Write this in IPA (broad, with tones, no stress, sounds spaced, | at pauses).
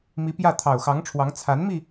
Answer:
m i˧˥ p j ä˥˩ t̪ʰ ɑ˨˩ ʊ̯ x ɑ˧˥ ŋ ʈ͡ʂʰ w ɑ˧˥ ŋ t͡sʰ a˧˥ n m i˧